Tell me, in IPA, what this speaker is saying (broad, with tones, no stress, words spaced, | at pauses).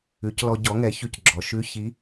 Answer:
ʉ˩˧clɔ˧ɟɔ˩˥ŋɛ˩˥ çʉ˧cɡ͡ǁɔ˩˧ ʃʉ˧˥ çi˧˥